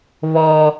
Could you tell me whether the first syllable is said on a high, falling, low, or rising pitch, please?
high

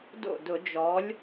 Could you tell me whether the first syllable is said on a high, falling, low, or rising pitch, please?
falling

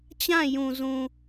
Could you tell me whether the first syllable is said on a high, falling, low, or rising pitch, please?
falling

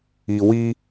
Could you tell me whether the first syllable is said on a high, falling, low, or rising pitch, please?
low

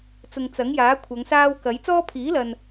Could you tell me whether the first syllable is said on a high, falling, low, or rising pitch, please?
low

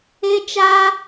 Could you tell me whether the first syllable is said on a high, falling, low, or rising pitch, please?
high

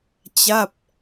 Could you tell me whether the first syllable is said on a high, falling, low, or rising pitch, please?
falling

